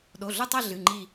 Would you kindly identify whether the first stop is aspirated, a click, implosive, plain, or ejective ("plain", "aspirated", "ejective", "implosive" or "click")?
implosive